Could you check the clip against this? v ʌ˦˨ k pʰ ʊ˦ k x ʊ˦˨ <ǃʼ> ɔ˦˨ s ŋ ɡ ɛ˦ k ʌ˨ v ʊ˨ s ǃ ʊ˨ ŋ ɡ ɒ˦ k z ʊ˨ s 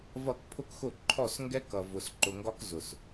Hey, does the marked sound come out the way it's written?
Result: no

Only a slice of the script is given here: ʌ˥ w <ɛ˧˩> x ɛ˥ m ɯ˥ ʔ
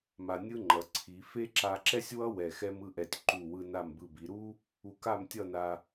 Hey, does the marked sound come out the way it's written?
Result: yes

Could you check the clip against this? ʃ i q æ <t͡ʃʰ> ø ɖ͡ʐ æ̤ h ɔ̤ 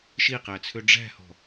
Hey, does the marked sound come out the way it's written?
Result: no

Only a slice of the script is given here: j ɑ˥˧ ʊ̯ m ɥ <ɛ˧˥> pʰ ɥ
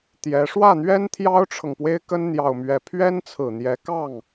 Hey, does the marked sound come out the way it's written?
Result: no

